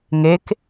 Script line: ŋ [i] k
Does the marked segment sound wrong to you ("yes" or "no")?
yes